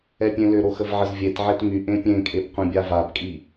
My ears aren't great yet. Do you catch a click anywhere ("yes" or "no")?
no